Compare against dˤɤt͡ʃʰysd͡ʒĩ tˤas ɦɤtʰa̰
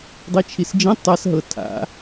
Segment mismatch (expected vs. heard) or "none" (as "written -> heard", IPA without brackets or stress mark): y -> i